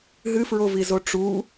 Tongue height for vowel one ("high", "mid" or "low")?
high